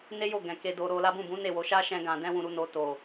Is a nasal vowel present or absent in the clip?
present